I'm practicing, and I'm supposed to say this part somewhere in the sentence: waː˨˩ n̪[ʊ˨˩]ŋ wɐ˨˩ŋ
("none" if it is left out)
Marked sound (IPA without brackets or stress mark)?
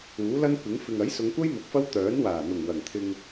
ʊ˨˩